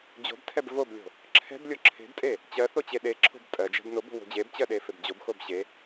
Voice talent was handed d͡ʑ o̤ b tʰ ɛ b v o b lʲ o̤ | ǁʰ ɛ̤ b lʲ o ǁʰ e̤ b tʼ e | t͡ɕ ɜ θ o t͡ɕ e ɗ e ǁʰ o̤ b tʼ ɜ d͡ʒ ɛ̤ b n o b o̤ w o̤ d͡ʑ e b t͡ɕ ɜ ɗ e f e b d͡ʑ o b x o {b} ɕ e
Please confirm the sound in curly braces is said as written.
yes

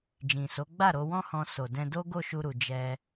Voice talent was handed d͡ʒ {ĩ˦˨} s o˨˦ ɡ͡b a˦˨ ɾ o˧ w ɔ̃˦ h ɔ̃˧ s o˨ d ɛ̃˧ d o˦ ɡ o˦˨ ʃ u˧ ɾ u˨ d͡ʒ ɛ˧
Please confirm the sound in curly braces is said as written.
no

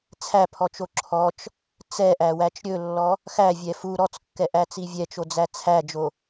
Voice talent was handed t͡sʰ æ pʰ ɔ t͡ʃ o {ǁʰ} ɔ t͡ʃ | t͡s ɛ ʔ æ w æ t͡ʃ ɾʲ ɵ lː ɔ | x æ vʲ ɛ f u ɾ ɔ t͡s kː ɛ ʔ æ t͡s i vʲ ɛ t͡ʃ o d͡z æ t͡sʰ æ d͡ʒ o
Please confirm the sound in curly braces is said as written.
yes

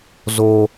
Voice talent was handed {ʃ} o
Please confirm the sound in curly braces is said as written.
no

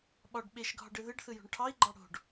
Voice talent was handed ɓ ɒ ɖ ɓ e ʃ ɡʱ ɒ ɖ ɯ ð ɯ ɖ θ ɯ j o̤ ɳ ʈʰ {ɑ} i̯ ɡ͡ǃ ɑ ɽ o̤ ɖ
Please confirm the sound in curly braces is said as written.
yes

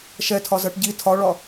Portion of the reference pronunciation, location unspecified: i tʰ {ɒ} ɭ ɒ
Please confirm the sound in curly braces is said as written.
yes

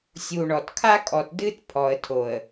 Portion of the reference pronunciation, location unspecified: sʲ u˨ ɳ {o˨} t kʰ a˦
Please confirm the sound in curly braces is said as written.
no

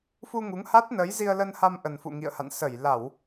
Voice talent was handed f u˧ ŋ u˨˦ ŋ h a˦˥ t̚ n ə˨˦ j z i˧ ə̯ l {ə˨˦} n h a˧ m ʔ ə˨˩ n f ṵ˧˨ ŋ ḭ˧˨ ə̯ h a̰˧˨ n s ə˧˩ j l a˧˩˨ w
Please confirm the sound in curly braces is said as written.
no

